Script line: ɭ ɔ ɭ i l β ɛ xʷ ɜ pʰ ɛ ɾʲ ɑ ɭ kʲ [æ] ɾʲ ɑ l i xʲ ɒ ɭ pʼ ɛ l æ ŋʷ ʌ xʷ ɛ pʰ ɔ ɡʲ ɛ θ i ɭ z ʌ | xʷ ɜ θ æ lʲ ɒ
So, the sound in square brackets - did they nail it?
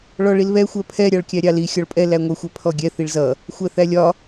yes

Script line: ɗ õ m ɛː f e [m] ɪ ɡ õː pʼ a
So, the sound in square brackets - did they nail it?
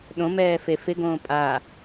no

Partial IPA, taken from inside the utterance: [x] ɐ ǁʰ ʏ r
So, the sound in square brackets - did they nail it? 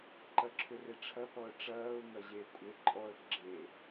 no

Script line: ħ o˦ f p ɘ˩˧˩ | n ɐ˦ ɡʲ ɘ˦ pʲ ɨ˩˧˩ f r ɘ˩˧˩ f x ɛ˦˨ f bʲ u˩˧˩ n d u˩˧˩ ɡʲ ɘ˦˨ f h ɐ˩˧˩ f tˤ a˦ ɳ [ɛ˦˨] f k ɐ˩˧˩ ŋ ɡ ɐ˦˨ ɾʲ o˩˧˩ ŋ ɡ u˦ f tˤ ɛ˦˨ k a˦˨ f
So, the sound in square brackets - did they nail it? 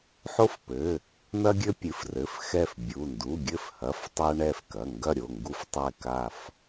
yes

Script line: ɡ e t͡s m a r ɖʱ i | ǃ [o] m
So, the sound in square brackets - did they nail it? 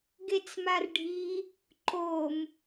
yes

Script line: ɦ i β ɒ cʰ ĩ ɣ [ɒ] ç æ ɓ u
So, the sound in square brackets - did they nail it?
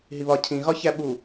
yes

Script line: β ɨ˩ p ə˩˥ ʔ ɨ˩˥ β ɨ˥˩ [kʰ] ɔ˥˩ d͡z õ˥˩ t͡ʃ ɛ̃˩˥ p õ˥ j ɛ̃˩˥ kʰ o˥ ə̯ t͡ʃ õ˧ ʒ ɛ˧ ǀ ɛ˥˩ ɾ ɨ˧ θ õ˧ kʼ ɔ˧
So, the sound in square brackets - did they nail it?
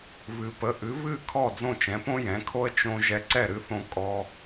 yes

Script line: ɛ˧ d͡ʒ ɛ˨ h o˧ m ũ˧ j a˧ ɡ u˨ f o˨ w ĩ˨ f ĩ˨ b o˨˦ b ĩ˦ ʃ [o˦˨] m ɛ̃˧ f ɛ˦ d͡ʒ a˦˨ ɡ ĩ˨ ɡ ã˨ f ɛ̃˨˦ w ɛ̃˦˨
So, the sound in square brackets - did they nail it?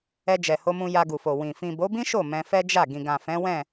yes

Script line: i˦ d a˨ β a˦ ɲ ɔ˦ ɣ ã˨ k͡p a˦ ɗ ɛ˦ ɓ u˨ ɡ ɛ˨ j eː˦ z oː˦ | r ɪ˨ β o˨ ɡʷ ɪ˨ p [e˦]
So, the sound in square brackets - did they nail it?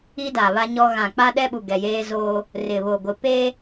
yes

